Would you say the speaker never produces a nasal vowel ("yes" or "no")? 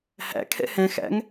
no